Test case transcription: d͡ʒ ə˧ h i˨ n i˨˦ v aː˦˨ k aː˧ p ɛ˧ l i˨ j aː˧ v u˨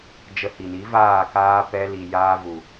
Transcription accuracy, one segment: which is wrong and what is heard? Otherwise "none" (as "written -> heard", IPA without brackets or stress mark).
none